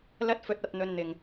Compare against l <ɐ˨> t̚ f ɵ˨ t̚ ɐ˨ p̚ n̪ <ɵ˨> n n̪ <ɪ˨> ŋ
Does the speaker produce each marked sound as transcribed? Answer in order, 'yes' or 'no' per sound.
no, yes, yes

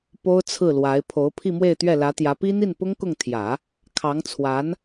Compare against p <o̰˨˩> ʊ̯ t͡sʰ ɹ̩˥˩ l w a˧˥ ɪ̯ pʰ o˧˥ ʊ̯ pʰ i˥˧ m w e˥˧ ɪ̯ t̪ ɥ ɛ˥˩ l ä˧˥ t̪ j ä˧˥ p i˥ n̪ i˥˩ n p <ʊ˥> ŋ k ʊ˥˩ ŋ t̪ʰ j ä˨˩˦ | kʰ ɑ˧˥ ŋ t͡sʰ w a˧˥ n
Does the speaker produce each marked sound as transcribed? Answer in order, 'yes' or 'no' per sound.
no, yes

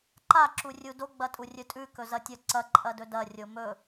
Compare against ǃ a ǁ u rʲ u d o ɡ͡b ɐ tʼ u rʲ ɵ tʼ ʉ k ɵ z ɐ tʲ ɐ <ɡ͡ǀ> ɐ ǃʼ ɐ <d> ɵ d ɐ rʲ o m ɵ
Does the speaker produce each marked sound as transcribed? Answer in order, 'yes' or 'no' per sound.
no, yes

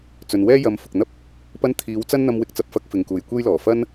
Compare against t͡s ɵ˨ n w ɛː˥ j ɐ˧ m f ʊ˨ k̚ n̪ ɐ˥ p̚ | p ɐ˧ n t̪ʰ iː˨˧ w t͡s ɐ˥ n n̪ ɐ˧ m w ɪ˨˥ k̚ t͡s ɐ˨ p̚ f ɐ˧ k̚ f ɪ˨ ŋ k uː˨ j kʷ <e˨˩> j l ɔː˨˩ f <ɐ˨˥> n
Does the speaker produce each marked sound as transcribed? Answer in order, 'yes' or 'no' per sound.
no, no

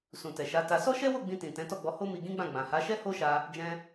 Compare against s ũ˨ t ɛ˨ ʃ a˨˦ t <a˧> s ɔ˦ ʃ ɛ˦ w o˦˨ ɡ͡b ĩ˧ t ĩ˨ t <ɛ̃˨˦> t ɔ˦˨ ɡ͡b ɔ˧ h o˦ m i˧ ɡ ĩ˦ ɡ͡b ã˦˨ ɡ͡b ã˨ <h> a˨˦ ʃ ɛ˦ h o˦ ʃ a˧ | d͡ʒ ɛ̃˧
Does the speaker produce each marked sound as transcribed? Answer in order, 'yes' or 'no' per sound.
yes, yes, yes

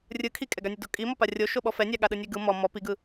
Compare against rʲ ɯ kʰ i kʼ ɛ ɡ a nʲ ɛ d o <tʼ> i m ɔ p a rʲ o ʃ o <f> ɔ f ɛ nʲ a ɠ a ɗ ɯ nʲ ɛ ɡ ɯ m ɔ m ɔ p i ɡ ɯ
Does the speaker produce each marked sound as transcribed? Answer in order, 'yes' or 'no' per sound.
no, no

